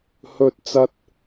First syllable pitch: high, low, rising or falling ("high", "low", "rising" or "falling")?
high